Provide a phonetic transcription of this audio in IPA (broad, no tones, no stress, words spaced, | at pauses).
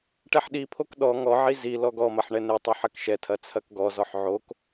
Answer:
ʈɛħɗipʰok ɗɔ ŋɔʕi zi lɔɡɔmɐħ ɳɛnetˤɐ ħɐkʃɛtʰɐ t͡sʰɐkɡɔzɔħ ʕok